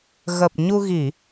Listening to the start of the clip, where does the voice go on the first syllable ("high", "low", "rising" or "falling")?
low